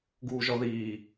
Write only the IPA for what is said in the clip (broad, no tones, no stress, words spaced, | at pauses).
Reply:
ɡuːʒɔðiː